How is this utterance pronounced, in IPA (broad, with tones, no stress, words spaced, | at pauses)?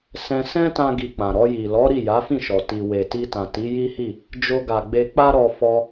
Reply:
sɛ̃˧sɛ̃˦ tã˦ɡi˧k͡pã˨ ɾɔ˧ji˨lɔ˨˦ɾi˦˨ ja˨˦fĩ˦˨ʃɔ˨ ti˨ we˨ti˧ tã˨ti˨˦ji˦hi˦˨ | d͡ʒo˧ɡa˨ɡ͡be˧k͡pa˦ ɾɔ˧ fɔ˧